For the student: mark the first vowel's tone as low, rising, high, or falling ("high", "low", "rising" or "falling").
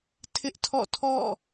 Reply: high